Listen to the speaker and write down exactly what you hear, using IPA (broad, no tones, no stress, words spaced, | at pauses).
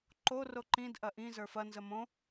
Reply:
ǃo roǃĩd ʔɐʔĩ zə˞fɐ nzəmõ